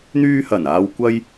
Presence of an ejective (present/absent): absent